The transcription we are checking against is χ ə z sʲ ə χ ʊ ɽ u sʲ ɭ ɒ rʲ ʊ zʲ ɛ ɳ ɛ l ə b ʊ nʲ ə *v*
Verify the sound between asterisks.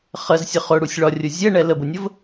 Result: correct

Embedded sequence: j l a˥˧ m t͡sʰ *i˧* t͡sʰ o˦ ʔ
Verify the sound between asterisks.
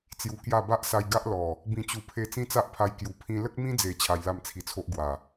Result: correct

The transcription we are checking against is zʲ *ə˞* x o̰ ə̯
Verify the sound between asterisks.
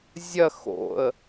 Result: incorrect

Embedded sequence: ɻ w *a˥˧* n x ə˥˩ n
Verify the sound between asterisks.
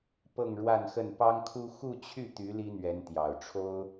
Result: correct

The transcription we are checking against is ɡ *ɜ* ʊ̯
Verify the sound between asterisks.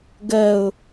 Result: correct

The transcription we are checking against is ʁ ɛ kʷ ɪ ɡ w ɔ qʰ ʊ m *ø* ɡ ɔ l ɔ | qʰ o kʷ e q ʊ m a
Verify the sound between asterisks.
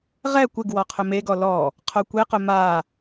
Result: incorrect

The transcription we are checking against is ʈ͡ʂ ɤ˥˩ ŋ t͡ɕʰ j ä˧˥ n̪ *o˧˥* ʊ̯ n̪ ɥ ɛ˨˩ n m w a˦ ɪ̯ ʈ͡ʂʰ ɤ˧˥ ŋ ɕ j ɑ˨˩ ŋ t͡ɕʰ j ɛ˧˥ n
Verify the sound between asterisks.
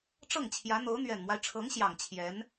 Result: correct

